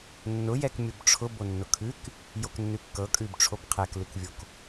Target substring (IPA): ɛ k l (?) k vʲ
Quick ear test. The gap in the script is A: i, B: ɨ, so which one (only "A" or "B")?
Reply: B